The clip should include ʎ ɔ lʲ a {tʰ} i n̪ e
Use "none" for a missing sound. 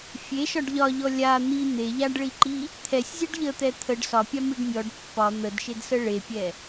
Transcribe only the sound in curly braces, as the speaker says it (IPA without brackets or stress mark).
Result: n̪